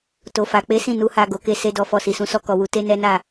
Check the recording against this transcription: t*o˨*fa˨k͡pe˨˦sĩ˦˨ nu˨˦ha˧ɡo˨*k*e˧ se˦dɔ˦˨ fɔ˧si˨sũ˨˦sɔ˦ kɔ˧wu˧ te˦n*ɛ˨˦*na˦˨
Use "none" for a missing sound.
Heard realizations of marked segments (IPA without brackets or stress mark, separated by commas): o˨, k, ɛ˦